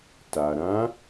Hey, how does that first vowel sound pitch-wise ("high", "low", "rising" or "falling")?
low